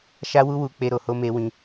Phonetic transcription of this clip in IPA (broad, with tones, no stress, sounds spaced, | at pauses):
ʃ a˦ w u˦ w u˧ k͡p e˧ ɾ o˨ h o˧ m e˧ w ĩ˧